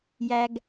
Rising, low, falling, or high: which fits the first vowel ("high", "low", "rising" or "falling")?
low